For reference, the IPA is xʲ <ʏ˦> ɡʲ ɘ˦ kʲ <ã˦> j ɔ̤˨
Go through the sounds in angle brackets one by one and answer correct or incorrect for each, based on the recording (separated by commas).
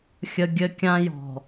incorrect, correct